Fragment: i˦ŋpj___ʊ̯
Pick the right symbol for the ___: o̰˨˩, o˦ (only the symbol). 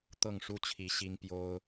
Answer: o˦